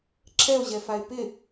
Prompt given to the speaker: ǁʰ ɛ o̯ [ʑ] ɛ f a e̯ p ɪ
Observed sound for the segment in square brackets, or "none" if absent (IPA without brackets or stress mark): ʑ